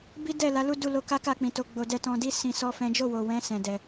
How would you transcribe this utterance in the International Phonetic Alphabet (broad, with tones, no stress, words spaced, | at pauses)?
bi˦dɛ˦˨la˨˦lu˦ du˦˨lo˧ ka˦ka˦˨k͡pĩ˨ to˧ɡ͡bo˧ dɛ˧tɔ̃˧di˦ sĩ˧sɔ˦fɛ̃˦ d͡ʒo˦˨wo˨wɛ̃˨˦ sɛ̃˧dɛ˧